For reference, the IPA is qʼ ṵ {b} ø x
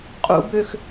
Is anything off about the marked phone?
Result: no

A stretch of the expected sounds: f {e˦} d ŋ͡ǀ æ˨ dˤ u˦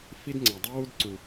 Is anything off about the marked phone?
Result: yes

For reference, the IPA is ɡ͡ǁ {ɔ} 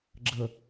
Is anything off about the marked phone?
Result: yes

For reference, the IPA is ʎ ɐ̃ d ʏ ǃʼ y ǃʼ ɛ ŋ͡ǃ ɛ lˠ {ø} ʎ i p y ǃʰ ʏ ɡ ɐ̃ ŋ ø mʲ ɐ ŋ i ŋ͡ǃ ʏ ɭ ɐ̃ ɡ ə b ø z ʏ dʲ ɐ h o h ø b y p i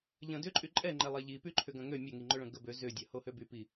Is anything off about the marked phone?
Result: yes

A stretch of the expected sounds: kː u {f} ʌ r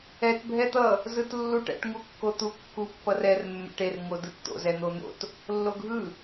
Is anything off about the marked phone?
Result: yes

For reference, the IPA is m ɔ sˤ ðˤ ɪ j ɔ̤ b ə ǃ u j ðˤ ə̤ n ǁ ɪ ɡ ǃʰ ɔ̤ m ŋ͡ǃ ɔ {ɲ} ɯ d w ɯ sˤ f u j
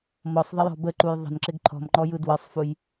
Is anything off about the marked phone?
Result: yes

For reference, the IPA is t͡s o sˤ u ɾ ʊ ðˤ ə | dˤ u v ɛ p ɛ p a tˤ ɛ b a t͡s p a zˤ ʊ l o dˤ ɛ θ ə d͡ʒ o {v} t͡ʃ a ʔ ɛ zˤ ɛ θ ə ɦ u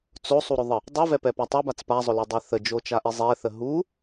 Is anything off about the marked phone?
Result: yes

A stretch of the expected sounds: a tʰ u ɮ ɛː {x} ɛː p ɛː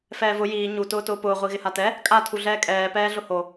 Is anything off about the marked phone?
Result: yes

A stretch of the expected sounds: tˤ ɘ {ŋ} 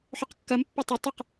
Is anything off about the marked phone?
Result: yes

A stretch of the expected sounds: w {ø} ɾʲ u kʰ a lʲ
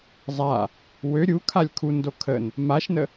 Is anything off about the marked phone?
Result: no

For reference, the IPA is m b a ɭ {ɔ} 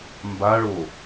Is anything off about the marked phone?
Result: yes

